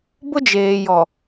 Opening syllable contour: high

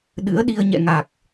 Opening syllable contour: rising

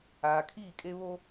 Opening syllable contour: low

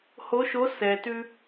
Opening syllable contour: rising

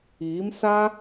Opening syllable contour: rising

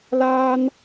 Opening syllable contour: high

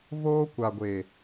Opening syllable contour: high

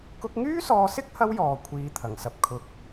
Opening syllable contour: high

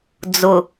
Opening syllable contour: low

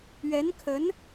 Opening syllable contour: rising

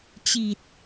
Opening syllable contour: low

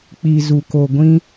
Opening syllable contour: low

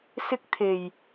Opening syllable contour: high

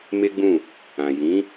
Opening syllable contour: high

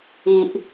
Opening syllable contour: low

